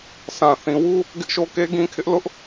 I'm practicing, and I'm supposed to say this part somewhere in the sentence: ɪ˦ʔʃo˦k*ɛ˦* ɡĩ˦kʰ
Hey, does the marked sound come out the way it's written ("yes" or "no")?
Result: no